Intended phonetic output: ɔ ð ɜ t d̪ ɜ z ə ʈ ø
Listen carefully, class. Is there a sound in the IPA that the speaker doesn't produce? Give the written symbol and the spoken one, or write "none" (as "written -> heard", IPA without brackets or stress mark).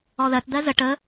ø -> ə